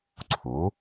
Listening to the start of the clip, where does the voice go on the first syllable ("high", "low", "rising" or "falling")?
rising